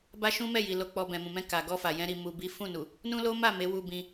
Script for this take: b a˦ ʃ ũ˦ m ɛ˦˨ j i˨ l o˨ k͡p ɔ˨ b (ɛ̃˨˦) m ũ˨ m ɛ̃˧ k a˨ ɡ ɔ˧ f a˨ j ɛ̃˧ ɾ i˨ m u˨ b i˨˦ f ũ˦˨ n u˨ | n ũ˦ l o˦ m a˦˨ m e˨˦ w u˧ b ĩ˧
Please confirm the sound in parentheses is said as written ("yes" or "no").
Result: no